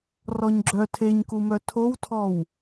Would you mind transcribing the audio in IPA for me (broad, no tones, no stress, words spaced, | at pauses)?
rɔɲɡ͡ǁœ tʰeɲkumœ tʰowtʰɔw